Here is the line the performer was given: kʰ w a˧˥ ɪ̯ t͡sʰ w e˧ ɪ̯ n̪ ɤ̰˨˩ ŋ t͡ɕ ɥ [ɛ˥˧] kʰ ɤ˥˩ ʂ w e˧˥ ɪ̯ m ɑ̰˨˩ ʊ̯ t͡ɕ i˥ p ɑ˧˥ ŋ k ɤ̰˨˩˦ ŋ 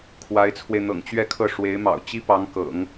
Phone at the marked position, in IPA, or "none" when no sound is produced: ɛ˥˧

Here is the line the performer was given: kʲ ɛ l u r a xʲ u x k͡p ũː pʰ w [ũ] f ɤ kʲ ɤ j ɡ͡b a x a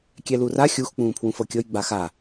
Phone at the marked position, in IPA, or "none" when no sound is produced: ũ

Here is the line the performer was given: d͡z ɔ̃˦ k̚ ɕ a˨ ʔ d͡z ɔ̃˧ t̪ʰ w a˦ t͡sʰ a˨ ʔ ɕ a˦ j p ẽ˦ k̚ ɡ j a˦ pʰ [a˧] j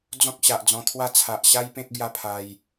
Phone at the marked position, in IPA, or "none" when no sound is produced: a˧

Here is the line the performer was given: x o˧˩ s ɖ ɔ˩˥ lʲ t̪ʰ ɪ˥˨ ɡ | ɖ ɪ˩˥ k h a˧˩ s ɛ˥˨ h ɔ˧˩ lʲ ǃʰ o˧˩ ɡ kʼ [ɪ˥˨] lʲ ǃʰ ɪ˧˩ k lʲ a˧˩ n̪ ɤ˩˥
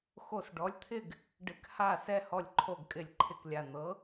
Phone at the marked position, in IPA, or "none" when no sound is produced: ɪ˧˩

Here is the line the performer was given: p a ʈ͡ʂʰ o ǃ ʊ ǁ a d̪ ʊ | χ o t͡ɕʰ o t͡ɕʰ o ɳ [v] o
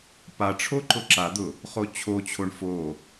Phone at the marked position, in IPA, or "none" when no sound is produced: f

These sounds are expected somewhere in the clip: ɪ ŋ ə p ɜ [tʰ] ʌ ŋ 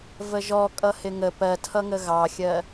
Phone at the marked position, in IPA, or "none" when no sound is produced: tʰ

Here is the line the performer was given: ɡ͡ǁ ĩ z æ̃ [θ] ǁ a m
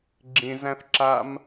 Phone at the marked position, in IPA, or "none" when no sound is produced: θ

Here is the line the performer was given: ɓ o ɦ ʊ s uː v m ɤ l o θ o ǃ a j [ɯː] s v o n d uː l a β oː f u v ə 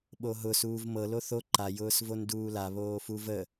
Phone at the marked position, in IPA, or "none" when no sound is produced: ʊː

